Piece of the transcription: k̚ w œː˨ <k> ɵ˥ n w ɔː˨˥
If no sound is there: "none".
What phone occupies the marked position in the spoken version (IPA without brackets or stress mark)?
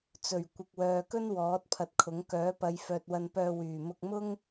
k